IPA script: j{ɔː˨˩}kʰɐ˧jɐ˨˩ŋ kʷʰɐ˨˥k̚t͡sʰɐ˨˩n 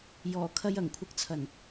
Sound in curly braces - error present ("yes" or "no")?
no